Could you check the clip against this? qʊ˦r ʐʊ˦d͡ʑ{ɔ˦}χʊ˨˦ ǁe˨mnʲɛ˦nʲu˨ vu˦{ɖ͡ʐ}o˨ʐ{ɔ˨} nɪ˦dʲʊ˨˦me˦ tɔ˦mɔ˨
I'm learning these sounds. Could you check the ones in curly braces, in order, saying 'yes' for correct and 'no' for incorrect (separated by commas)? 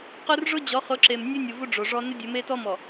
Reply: no, yes, no